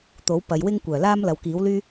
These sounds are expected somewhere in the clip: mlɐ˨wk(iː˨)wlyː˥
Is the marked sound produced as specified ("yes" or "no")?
no